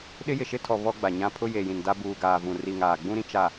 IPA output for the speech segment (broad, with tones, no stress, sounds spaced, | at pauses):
ɗ ɪ˦ j ɪ˨ ʃ ɪ˦ tʰ ɔ˨ β ɔ˦ ɡ͡b a˨ ɲ ã˦ pʰ ʊ˦ j e˨ j ĩ˨ n d a˦ b uː˨ ɡ aː˨ v ũ˨ r i˨ ŋ aː˨ ɡ͡b ũ˦ ɾ ĩ˦ t͡ʃ a˨